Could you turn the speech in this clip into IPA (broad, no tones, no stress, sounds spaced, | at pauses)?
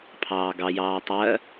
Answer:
pʰ ɑː ɡ ɑ j ɑː tˤ ɜ